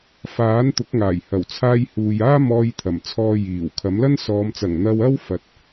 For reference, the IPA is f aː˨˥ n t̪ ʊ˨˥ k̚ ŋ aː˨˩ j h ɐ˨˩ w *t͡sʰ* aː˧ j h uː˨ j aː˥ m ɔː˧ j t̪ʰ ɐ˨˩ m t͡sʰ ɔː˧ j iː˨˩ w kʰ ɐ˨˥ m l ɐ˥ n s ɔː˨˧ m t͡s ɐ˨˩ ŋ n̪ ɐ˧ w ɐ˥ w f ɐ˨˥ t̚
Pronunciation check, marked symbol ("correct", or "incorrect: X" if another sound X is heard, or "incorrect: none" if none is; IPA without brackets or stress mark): correct